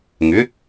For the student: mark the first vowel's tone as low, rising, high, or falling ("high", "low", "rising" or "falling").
rising